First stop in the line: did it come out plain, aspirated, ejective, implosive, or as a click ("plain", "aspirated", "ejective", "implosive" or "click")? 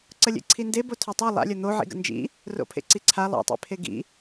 click